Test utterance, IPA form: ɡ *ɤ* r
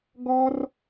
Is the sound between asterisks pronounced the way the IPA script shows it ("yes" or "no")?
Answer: no